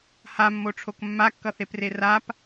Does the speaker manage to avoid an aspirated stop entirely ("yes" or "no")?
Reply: no